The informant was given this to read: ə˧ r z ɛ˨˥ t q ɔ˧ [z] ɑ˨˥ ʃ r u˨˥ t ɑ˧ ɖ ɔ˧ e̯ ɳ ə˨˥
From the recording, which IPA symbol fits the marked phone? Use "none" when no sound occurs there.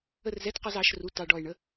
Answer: z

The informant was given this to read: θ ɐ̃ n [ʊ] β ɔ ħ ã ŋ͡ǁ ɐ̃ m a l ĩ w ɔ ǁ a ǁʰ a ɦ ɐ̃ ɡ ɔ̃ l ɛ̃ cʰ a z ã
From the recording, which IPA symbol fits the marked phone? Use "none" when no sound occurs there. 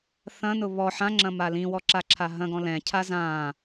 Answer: ʊ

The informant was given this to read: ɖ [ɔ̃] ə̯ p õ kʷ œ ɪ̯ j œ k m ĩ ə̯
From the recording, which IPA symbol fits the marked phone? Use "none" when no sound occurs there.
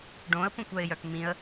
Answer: õ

